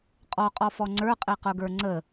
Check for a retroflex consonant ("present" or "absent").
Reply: absent